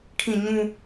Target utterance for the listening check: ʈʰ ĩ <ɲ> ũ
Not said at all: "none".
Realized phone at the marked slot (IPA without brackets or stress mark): ɲ